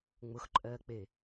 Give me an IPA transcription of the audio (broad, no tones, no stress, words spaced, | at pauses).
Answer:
ŋ͡mʊxǃʼɜːk͡pe